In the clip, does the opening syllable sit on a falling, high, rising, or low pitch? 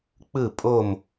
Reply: falling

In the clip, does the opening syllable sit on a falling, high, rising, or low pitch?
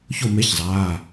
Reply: falling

